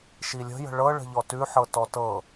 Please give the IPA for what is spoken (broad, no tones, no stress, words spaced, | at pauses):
ʃilʲə̤ jə̤ɭɤ ɭə̤ʎɔtʉħɤ tɔtɤ